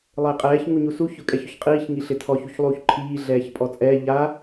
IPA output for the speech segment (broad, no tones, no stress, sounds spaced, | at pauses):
lˠ ɪː qʼ ɛː ç ŋ u ɲ u s u ç ʊ kʼ ɛ ç ʊ ç qʼ iː ç ŋ i ɬ ɪ tʰ ɔ ç u ç lˠ uː ç ǃʰ iː ɮ ɛː ç pʼ ɔ t͡sʼ ɛː ʎ a